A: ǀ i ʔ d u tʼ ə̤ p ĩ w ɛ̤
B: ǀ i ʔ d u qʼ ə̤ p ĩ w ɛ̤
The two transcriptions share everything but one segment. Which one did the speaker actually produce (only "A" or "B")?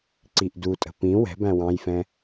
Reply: A